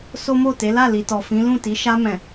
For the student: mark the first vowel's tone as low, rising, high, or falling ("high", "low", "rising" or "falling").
high